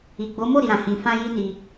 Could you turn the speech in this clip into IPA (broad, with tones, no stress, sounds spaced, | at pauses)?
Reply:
i˨ ɡ͡b o˨˦ m o˦˨ ɾ i˨ ɾ ã˨ h ĩ˨ f ã˧ j i˦ n i˧